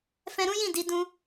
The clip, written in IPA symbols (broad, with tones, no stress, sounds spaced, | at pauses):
f ɛ̃˧ ɾ ũ˦ j ĩ˦˨ d i˨˦ d ũ˧